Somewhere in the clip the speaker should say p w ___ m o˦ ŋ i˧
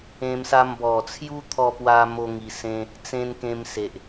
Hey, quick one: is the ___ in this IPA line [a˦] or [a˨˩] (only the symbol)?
a˦